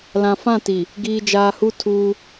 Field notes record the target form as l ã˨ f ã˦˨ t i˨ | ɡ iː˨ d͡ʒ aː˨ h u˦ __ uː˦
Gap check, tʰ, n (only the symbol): tʰ